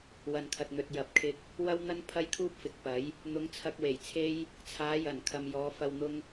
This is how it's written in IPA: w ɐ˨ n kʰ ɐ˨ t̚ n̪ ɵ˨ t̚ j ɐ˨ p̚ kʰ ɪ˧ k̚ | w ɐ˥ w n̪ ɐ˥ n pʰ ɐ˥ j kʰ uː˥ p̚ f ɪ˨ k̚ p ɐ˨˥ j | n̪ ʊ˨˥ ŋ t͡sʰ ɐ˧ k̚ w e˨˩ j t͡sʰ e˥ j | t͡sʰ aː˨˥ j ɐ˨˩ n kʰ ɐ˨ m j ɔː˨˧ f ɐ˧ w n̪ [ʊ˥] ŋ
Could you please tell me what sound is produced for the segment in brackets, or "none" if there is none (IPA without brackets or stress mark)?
ʊ˥